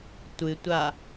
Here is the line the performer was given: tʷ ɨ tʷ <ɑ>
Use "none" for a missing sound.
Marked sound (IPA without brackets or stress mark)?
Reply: a